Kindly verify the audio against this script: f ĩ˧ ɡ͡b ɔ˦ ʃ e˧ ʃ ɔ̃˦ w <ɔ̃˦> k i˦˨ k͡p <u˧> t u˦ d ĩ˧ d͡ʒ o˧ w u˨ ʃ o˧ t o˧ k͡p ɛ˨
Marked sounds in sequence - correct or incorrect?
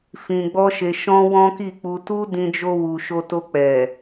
correct, correct

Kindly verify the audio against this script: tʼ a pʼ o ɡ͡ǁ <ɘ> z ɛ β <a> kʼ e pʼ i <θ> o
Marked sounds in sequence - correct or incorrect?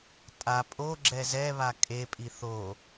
incorrect: ɛ, correct, correct

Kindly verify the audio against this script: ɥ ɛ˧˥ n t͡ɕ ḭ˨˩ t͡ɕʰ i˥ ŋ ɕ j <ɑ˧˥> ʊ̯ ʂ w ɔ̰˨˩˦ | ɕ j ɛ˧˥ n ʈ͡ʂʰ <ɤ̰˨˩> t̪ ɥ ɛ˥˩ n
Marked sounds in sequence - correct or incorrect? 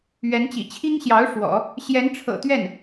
correct, correct

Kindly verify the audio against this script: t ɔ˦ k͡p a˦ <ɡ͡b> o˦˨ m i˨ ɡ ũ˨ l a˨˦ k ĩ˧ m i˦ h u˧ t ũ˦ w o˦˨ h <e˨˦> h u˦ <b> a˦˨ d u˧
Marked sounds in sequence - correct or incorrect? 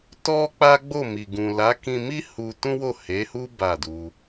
correct, correct, correct

